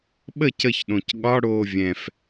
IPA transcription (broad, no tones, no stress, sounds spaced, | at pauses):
ɓ ə c ə ç ɗ õ c ɠ ɒ ɽ oː vʲ ɛ̃ f